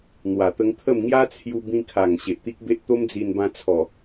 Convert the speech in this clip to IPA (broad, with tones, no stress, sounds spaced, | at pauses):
n̪ w a˨˩ t̪ ə˧ ŋ t̪ʰ ə˥˧ m ŋ j a˦ t͡sʰ j u˧ b ĩ˧ kʰ a˨˩ ŋ ɕ e˨ ʔ t̪ i˦ k̚ b e˦ ʔ t̪ o˦ m d͡z i˧ n b ã˧ t͡sʰ ɔ˨˩